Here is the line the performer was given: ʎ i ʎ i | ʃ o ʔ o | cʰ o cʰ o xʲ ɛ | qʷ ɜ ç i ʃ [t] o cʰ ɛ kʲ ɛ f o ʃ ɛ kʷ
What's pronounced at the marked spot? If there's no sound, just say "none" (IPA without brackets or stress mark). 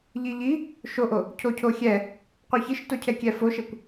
t